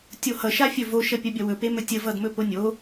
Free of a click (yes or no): yes